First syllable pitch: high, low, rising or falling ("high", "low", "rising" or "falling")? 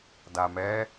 low